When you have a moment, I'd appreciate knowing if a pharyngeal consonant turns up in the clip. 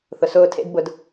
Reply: no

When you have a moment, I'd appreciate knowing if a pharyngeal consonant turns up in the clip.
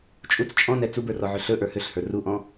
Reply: yes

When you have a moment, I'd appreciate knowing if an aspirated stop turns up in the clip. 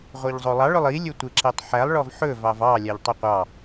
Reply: no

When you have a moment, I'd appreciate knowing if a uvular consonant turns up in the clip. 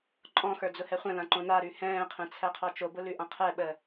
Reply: yes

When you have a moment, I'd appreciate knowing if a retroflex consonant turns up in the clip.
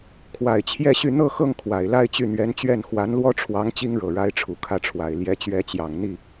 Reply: yes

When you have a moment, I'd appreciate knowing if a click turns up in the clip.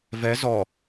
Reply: no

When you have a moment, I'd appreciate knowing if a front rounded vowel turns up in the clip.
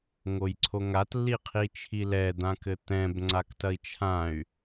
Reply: yes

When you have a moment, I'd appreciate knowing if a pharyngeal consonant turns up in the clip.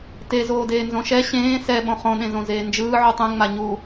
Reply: yes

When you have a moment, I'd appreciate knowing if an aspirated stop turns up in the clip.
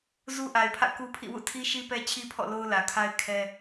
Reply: yes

